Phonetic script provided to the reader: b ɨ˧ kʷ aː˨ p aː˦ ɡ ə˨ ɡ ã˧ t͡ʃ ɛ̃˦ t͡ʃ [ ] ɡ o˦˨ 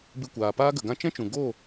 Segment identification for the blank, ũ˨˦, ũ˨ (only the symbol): ũ˨